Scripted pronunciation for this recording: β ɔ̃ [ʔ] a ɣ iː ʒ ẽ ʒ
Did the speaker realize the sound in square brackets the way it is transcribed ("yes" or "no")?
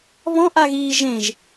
yes